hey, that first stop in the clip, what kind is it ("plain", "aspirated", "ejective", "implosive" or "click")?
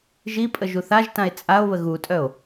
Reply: ejective